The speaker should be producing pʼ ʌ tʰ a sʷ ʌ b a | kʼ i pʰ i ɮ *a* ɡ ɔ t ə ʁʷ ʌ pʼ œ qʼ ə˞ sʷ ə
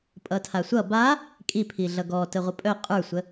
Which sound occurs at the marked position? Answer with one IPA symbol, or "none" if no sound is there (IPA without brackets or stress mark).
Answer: ʌ